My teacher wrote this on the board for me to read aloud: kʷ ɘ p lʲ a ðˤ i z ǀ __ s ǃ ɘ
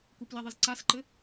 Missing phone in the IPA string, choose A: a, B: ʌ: A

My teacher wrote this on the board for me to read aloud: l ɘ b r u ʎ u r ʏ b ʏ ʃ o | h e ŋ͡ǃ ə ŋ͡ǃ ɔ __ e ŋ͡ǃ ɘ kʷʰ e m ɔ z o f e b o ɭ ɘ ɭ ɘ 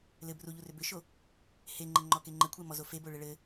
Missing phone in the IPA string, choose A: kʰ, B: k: B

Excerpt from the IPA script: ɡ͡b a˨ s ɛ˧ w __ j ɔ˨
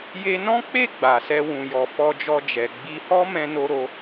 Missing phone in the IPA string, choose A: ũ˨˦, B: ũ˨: B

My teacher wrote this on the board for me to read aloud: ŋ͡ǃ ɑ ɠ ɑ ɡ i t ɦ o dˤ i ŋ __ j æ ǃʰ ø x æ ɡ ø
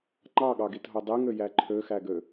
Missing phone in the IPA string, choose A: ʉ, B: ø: B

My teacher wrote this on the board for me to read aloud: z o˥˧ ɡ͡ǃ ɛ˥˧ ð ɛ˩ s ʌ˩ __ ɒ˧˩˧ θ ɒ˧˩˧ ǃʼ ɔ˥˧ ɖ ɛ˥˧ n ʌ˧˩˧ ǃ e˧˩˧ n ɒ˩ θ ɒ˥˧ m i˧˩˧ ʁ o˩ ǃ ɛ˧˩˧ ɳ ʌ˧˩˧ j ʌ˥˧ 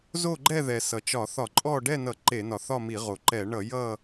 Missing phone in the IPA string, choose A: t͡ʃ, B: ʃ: A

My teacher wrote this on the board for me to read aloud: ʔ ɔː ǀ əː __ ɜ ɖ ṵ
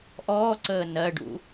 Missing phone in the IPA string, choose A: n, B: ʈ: A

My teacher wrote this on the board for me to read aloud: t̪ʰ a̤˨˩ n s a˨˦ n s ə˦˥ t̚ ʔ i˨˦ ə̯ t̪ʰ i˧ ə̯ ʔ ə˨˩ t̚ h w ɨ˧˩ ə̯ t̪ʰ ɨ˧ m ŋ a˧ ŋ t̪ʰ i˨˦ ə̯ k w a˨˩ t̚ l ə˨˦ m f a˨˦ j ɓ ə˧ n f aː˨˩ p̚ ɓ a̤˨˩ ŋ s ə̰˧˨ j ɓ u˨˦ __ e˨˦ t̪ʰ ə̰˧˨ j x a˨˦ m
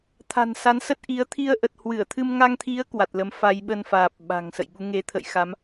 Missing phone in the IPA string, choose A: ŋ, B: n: A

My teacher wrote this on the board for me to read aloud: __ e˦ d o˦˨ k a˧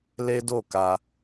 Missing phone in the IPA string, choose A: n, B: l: B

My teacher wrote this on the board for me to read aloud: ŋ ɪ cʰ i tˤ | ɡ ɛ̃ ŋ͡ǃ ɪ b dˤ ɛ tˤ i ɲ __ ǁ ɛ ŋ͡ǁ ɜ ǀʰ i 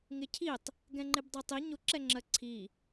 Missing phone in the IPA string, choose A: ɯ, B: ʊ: B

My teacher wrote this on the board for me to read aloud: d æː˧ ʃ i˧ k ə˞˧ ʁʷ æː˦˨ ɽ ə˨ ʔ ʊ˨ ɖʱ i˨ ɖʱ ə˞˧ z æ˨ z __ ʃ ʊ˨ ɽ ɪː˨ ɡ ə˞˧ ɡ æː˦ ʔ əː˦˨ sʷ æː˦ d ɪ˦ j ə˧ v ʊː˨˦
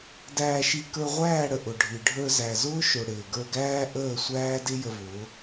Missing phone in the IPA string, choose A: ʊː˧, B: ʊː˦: B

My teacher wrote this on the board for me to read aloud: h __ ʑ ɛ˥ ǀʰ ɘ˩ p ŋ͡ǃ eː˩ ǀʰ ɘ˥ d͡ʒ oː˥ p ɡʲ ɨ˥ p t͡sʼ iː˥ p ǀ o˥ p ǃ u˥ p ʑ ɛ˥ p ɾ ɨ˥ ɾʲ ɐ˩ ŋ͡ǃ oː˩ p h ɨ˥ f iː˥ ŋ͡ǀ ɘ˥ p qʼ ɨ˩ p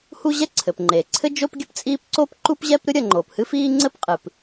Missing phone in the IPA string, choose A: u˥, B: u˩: A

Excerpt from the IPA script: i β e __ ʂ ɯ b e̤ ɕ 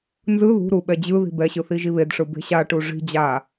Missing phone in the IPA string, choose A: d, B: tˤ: A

